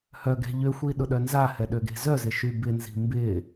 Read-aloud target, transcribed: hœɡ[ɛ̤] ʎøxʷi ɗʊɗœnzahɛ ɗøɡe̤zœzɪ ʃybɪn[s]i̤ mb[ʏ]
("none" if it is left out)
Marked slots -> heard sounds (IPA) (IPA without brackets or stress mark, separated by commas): ɛ̤, z, ɪ